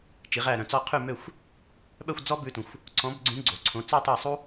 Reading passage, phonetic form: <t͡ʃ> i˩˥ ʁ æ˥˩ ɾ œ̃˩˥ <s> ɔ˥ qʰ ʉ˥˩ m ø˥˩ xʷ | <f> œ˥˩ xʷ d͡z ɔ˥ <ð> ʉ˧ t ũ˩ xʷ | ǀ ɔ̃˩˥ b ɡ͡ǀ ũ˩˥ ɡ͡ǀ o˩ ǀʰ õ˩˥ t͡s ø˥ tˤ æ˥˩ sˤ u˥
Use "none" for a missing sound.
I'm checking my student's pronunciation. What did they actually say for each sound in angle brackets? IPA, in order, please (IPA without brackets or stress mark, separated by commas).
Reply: t͡ʃ, t͡s, ɓ, b